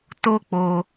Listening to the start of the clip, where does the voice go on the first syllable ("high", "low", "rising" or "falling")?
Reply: high